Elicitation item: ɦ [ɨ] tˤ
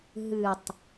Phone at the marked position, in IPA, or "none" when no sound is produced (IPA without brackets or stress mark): ɨ